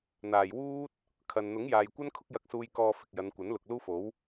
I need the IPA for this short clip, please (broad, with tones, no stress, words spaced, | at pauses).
n̪aː˨˩jwuː˥t̚ | kʰɐ˨n n̪ʊ˨˥ŋjaː˨jkʷɐ˥n kʰʊ˥k̚jɐ˧k̚suː˧j kɔː˧fɪ˨k̚jɐ˨˧n kʷɐ˨˥nlʊ˨k̚ luː˥fo˨˥w